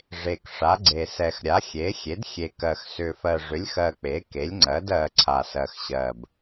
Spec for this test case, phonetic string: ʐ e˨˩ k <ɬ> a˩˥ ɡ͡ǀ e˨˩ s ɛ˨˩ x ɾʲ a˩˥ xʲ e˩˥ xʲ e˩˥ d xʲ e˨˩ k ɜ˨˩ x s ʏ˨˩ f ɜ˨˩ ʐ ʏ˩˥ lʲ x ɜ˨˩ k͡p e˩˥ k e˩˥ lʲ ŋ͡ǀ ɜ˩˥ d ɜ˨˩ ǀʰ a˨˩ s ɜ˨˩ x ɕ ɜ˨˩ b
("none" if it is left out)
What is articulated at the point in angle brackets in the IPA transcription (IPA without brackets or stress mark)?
ʂ